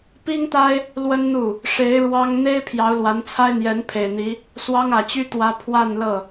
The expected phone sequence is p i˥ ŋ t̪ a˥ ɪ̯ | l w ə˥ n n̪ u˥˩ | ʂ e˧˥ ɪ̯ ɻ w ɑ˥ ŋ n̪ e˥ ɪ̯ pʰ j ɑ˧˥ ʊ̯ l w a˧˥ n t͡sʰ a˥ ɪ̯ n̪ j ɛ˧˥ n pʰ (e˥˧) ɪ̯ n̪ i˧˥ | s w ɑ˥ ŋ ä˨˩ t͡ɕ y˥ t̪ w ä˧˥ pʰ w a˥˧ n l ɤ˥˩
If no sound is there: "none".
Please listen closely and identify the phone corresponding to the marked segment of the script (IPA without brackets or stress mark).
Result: e˨˩